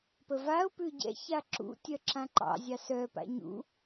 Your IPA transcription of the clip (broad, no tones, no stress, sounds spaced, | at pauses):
p ə v a ʊ̯ p ʉ ɟ ɛ̰ ç a ǁ ṵ tʲ œ ǁ ã ǃ ɑ̰ zʲ ɑ s œ p a̰ ɲ ṵ